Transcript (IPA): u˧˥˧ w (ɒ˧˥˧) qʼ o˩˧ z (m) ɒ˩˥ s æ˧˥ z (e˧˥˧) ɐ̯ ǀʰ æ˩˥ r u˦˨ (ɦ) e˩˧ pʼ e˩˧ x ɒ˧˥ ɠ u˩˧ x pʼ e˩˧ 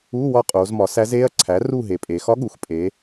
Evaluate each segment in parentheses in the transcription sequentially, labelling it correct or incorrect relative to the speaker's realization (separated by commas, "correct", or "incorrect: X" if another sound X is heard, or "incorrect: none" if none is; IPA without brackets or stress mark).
incorrect: ɒ˦˨, correct, correct, correct